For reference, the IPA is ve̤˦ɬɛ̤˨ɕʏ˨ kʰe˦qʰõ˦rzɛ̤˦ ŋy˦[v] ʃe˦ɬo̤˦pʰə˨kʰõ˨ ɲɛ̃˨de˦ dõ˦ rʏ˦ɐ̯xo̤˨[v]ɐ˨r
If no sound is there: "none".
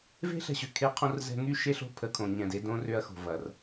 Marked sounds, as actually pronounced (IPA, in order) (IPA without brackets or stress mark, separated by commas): none, v